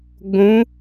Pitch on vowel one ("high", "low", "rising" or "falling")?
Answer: rising